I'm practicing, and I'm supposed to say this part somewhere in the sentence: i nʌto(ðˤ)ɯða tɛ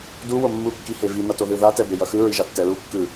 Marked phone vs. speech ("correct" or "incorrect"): incorrect